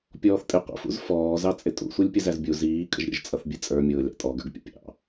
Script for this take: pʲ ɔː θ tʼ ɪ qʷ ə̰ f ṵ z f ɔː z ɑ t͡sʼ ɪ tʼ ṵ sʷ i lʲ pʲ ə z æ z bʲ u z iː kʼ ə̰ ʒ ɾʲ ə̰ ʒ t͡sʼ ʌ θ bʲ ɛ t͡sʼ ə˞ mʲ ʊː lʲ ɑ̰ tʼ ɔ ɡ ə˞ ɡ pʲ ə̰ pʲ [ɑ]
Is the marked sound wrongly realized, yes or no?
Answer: yes